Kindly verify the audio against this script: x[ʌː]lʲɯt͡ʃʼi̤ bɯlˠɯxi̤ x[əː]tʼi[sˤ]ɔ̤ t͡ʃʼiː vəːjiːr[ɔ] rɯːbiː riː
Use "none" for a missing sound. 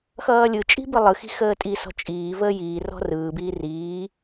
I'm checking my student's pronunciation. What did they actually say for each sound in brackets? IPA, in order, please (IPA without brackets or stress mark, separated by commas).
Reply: ʌː, əː, s, ɔ̤